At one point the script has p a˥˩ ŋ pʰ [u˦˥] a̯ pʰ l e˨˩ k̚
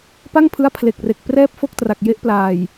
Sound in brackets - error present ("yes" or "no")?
yes